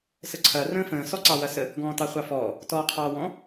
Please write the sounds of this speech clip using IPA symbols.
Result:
s ə ǀʰ ɐ r ə̃ː f ə̃ː s ɔ ǀ ɑ w ɐ s ə | ɡ ɔ̃ː t ɑ χʷ ɑ f ɔː | t ɔː qʰ ɑː w ɔ̃

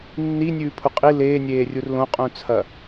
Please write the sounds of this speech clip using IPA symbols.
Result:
nː i nʲ ʉː pʰ u qʼ i l eː nʲ eː rʲ u r l õ qʼ ũ t͡sʰ ɐ

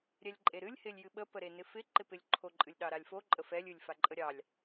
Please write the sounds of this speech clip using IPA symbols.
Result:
ɾʲ ɛ lʲ ǃʼ e ɾ ɨ lʲ h ɪ lʲ j ɨ ɓ ə p ə ɾ e n ɪ f ɪ ǃ ɪ p ɪ lʲ ǃʰ o ǃʼ ɨ lʲ ɗ ɑ ɾ a lʲ f o ǃʼ ə f ɛ lʲ ɨ lʲ f a ǃʼ ə ɾʲ ɑ lʲ

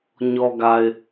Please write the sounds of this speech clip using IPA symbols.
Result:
ɲ ɔ˨ ɡ a˨ ɪ̯

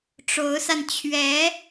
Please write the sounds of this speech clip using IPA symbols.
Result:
ʈ͡ʂ o˧˥ ʊ̯ s a˧ n t͡ɕʰ ɥ ɛ˧˥

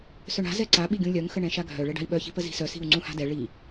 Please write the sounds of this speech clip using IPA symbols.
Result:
s œ ɳ a̤ z ɛ ǀ a ɓ i ɡʲ ũ lʲ œ ŋ x ə ɳ ɛ̃ ʃ a ɡʱ œ ɭ ɛ ɖ a̤ i̯ ɓ œ ç i̤ p ə z i̤ s œ s i̤ u̯ ŋ͡ǀ ũ h a̤ d ɛ ɭ i

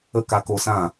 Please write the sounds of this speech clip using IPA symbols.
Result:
ə˦ k a˧ k o˧ s ã˦˨

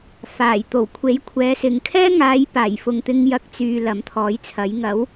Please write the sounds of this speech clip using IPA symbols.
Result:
f aː˨˩ j t̪ o˨˩ w kʷʰ e˨˥ j kʷʰ ɛː˨˧ s ɪ˨ ŋ kʰ ɛː˥ ŋ aː˨˧ j p aː˨˩ j f ʊ˨ ŋ t̪ ɪ˧ ŋ j ɐ˧ k̚ t͡s yː˨ l ɐ˨˥ m t̪ʰ ɔː˨˥ j t͡sʰ ɐ˨˥ j ŋ ɐ˨˥ w

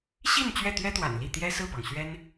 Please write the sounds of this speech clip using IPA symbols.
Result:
ɕ i˥˧ n t͡ɕ ɥ ɛ˥˩ t̪ ɥ ɛ˥ t̪ w a̰˨˩ n l i˥˩ t̪ j ɛ˥ s ɹ̩˥˩ p ɑ˩ ŋ ɕ ɥ ɛ˥ n

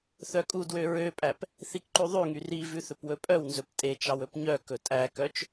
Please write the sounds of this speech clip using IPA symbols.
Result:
θ œ kʼ u d w ø ɹ ø pʼ æ p | θ i k ǃ ʉ ðˤ ʉ ŋ y r i v ʉ θ ɵ p w ɵ pʼ œ w n z ɵ p tʼ e t͡ʃ ɑ w ɵ p ɲ œ k ɵ tʼ æ k œ t͡ʃ

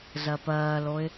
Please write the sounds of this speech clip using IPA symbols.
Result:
z ɜ p ɜː l o ɪ̯

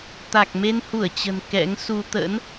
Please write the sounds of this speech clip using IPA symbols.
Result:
t̪ a˨˩ k̚ m e˧ n h u˧˩ ə̯ t͡ɕ ə̤˨˩ n k ɛ̰˧˥ ŋ s u˧ t̪ ə̰˧˥ n

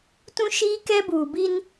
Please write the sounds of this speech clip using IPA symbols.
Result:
t ũ˦ ʃ iː˦ k ɛ˦ b uː˨ b i˦ n

